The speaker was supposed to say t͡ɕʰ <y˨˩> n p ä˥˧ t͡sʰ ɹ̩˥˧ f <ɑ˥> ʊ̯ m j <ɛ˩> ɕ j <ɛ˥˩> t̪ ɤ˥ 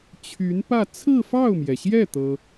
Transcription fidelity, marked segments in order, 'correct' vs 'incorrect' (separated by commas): incorrect, incorrect, correct, correct